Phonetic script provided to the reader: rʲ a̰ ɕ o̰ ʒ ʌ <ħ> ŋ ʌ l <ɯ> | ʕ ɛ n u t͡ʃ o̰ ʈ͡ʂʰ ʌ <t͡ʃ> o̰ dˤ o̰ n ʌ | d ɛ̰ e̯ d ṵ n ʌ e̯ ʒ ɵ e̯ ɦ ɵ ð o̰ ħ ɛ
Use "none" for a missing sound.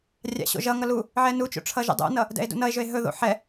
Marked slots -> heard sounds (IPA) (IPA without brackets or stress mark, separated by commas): none, u, ʒ